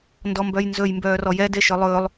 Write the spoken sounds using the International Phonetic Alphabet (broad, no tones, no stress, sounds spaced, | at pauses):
n d ɔ m b œ j n z ɵ j m b œː r ɔ j ɛ d e ʃ œ lˠ ɵː lˠ